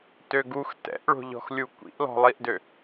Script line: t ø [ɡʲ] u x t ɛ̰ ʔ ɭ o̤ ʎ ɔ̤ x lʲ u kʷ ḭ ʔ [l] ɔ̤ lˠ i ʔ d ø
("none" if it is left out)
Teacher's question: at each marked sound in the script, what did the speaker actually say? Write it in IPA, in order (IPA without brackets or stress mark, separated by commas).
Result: ɡ, l